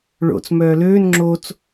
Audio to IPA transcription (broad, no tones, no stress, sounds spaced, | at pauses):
ɭ o̰ t͡s m œː l øː n ŋ͡ǁ o t͡s